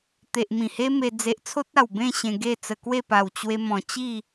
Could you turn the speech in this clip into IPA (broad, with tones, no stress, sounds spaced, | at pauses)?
t̪ e˨ ʔ m ĩ˨˩ h e˦ m e˧ d͡z e˨ ʔ t͡sʰ o˦ t̚ a˨˩ w b ẽ˥˧ ɕ ẽ˧ ɡ e˥˧ t͡s ə˧ k w e˥˧ p a˨˩ w t͡ɕ w e˧ m ɔ̃˨˩ t͡ɕ i˥˧